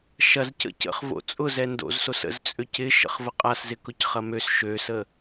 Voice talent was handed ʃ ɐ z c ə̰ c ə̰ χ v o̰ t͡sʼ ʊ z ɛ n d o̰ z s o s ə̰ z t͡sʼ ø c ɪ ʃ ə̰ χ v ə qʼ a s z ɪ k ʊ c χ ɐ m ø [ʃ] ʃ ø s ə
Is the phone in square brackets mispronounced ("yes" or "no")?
yes